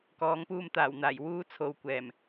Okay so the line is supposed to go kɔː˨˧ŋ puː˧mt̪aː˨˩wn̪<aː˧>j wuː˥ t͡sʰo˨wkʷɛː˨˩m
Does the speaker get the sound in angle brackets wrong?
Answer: yes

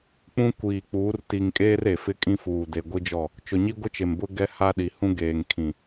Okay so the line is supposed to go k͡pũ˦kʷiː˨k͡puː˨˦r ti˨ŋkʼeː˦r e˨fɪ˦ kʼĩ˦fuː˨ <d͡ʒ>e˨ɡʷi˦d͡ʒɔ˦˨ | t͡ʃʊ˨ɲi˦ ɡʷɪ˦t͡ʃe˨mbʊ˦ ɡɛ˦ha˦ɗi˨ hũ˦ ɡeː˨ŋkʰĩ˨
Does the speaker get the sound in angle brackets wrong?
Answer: yes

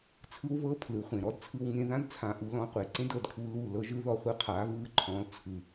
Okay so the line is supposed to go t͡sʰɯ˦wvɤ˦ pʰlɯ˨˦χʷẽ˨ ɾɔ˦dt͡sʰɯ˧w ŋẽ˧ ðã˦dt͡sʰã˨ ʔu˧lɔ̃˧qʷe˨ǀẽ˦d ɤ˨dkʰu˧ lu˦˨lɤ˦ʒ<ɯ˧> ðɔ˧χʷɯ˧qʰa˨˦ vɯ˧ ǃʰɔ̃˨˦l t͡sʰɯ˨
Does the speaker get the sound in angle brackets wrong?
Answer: yes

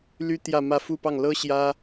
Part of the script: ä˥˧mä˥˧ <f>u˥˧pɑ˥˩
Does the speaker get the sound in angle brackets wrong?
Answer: no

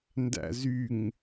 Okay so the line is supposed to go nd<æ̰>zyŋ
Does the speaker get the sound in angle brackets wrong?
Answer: no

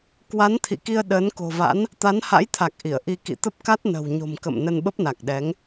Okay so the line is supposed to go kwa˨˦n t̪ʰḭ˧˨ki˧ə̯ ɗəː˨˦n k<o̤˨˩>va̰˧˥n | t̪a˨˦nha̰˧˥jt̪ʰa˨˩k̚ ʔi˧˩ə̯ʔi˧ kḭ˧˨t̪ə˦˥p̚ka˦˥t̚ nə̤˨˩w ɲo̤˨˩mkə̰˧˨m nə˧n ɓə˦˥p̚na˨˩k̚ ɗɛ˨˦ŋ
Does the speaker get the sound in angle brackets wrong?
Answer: no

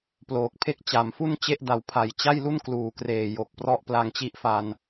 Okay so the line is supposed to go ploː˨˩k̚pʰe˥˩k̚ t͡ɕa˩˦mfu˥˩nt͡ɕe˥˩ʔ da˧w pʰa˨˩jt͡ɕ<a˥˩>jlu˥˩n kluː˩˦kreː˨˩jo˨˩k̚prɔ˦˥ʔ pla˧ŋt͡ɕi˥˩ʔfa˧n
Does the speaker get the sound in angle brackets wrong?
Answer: no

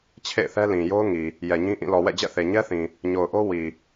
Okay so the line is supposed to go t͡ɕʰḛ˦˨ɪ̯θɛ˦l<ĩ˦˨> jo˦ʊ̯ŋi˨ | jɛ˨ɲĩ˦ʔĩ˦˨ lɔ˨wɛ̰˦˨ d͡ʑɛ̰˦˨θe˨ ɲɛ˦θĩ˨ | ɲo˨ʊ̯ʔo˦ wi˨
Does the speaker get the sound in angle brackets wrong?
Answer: yes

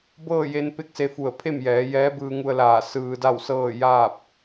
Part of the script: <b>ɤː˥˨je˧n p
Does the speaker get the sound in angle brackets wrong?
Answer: no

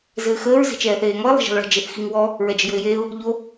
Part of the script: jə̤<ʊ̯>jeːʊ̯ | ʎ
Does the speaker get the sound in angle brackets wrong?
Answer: yes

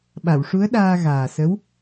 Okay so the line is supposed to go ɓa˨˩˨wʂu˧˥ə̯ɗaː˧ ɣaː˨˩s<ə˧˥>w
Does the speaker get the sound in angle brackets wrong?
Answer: no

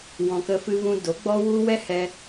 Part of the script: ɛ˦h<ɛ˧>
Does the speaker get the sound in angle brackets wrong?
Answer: no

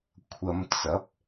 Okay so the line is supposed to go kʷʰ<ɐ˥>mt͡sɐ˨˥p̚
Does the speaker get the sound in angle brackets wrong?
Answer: yes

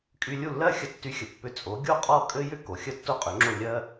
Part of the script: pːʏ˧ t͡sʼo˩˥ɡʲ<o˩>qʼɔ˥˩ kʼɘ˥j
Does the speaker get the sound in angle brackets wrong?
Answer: yes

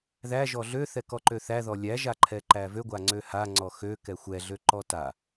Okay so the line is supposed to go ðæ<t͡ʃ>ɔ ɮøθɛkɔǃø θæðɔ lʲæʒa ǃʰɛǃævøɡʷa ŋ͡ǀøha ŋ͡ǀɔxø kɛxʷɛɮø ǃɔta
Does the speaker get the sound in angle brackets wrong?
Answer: yes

